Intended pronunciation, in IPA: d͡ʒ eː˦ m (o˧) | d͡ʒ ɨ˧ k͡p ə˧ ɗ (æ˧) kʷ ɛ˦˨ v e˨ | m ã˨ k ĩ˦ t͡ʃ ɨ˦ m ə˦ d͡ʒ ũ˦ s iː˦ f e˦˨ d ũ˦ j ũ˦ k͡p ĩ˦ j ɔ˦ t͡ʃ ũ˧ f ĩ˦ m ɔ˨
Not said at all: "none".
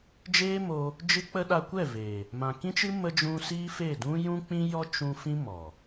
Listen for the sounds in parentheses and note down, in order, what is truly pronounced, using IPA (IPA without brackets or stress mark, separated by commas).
o˧, a˧